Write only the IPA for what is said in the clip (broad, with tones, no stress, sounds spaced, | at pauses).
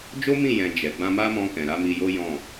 d͡ʒ o˦ m ĩ˦˨ j ɛ̃˨ d͡ʒ ɛ˨ ɡ͡b ã˧ m a˦ m ɔ̃˧ k ɛ̃˨ ɾ a˨˦ m i˧ j o˦ j ɔ̃˦˨